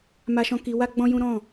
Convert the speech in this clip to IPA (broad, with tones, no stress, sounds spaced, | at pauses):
m a˧ ʃ ɔ̃˧ k i˧ w a˦ ɡ͡b ɔ̃˦ j ũ˦ ɾ ɔ̃˦˨